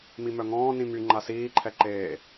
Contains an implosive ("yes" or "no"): no